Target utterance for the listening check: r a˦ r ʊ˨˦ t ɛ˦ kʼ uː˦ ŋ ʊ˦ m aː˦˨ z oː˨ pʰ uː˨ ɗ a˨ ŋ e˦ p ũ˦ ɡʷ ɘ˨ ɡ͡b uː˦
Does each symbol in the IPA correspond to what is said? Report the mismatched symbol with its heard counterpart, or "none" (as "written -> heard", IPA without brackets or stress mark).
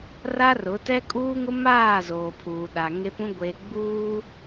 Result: ɘ˨ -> e˨